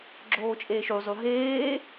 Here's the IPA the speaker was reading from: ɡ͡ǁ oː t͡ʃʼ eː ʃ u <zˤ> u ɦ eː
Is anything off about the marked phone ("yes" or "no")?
no